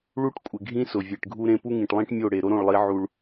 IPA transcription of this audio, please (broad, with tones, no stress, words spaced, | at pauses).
ɭu˦ʈkʷʼɪ˨ɡʱĩ˦ sʊ˨vʲe˨ʈɡʱu˦ɾẽ˦ pu˦ŋĩ˨ʈlˠĩ˦ʈ mʲo˦˨ ɽe˨ɾo˦ɾõ˦˨ɭlˠi˨˦ ʕu˦ɭ